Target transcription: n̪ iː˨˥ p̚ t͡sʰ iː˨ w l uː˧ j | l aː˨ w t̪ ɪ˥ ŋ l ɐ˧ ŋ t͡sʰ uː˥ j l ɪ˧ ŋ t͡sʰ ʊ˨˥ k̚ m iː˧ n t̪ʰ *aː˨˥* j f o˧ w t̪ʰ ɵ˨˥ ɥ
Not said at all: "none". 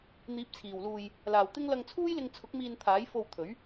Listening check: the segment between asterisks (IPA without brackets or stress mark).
aː˨˥